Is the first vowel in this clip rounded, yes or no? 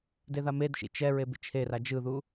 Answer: no